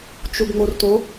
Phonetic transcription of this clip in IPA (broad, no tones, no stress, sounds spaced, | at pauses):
t͡ʃ u ɡ ŋ͡m o r t o